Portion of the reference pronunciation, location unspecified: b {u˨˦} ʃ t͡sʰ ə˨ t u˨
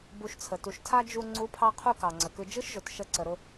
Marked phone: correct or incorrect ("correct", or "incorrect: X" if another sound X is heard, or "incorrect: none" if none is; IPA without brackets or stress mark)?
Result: incorrect: u˧